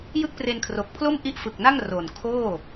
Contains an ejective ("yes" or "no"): no